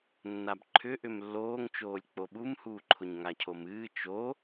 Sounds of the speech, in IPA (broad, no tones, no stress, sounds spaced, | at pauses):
nː a b ǃʰ ʏ ʔ ʏ m lː oː ŋ t͡ʃ oː lʲ k͡p o ɓ u m h uː ǃʰ ʊ ɲ ŋ a cʰ o m ɨː t͡ʃ o